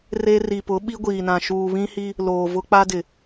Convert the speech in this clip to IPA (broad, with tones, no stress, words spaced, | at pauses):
re˦ ri˨pʊ˨˦ ɓi˦ɡʷiː˨nã˨ ʃuː˨βĩ˦hi˦ | loː˨vʊ˦k͡pa˦dɪ˨